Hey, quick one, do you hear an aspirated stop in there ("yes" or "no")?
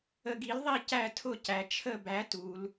yes